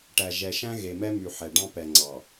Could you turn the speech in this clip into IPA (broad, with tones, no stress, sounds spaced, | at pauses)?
ʈ æ˨ ʒ ɛ˨ ʃ æ̃˦ ɣ e˨ m ɛ˦ m y˨ ħ ɛ˨ ɖ ɑ̃˦ p ɛ˨ ŋ͡ǀ ɑ˨